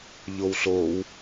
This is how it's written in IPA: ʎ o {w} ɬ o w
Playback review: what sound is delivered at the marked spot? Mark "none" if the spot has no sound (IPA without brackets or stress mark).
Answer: w